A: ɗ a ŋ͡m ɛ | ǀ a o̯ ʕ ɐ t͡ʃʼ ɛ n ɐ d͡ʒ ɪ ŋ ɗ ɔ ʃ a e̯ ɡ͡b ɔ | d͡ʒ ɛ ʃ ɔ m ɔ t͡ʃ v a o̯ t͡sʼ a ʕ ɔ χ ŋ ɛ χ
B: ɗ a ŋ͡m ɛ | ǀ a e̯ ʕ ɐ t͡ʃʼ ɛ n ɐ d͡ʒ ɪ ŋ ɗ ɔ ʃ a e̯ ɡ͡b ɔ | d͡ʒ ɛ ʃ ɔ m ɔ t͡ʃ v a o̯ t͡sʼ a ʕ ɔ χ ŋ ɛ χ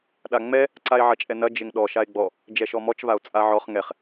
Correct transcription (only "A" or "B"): B